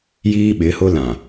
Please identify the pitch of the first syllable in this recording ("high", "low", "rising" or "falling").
high